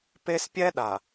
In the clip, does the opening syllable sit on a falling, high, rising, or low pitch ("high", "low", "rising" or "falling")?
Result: high